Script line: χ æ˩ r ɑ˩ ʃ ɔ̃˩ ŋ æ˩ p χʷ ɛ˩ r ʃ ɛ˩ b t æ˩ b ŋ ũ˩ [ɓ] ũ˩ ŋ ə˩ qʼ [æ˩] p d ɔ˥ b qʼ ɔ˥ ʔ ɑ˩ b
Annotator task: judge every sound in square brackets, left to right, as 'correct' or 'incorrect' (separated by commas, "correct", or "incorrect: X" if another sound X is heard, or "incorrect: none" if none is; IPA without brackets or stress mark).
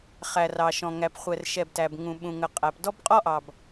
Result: correct, correct